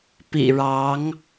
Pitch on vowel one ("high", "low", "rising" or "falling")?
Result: low